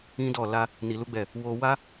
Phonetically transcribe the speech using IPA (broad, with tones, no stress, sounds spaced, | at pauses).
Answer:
ĩ˦ d ɔ˦˨ l a˧ | n i˧ l u˦ ɡ͡b ɛ˦˨ | w o˧ w a˦